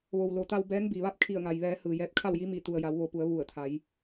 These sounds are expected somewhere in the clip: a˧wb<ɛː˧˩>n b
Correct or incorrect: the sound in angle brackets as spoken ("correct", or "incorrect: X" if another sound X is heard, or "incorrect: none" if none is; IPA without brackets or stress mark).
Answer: incorrect: ɛː˧˥